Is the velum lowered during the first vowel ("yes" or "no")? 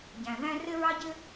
yes